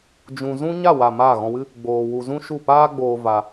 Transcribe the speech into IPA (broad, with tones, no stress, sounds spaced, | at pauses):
d͡ʒ ũ˧ z ũ˦ ɲ a˦˨ w a˨ m aː˦˨ ɣ ɔ̃˧ w ɨ˦ | ɡ͡b oː˧ w u˧ z ũ˦ ʃ u˦˨ p aː˦ ɡ͡b oː˧ v a˧